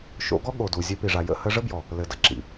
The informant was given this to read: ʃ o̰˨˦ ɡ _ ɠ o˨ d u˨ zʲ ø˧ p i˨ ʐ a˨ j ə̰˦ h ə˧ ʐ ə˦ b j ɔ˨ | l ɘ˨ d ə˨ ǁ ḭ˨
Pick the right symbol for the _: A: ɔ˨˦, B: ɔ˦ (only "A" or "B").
B